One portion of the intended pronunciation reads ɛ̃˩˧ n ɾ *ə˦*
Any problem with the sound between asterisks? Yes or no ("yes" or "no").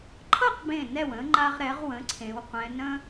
yes